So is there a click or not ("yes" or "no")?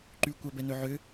yes